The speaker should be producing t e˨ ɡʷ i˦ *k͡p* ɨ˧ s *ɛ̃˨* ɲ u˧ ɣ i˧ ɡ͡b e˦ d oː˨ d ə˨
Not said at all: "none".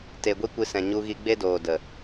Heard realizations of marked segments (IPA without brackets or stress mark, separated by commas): kʷ, ɛ̃˨